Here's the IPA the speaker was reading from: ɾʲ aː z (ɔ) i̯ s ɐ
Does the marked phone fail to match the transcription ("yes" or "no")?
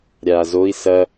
yes